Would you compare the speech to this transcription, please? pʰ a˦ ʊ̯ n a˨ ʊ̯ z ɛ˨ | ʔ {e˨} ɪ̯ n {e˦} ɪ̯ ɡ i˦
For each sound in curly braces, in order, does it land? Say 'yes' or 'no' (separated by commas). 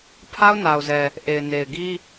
yes, no